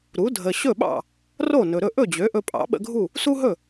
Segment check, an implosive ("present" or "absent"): present